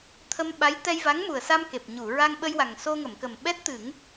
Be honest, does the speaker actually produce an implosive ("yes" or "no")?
yes